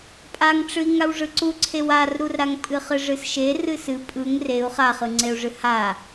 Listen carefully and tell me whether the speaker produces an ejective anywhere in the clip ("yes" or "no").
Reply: yes